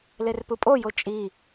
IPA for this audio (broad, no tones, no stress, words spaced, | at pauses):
lerpɯpʼojo t͡ʃʼi